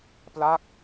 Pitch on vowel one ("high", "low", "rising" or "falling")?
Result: falling